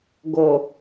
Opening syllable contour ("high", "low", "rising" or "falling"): low